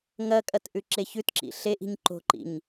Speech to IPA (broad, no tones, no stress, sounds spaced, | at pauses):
ŋ ɐ kʼ ɐ t ʔ ʉ ǁ e ç ʉ t ǁ ḭ ɬ e ʔ i̤ ɲ ǃ o̤ ǃ ḭ ɲ